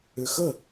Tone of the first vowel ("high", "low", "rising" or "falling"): low